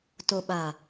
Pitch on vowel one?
low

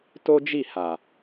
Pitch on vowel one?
high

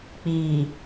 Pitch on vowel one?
low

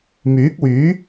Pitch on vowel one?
rising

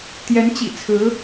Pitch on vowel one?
rising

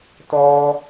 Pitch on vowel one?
high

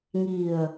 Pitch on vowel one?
low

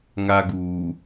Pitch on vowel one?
high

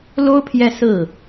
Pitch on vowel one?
high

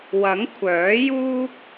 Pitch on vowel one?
rising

